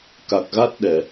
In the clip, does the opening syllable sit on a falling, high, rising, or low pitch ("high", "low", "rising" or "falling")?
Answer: low